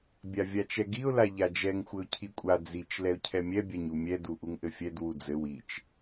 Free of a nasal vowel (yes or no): yes